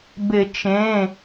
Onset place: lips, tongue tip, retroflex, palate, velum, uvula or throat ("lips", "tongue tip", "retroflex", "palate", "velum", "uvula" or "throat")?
lips